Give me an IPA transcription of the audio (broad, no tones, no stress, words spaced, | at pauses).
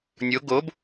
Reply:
nʲo ɡob